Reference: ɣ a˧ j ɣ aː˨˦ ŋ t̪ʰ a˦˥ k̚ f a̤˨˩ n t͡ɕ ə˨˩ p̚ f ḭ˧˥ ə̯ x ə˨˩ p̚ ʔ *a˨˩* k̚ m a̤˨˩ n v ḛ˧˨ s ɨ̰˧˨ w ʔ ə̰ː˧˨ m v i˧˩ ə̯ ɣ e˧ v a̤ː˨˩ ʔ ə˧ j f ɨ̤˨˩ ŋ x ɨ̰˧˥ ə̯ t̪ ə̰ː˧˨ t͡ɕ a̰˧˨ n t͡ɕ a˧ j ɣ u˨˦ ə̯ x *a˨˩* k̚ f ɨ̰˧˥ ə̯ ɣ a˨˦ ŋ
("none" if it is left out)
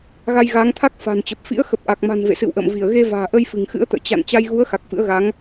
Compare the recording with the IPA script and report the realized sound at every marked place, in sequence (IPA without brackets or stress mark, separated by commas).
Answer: a˨˩, a˨˩